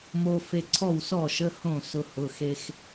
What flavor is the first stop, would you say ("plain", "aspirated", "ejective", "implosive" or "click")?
click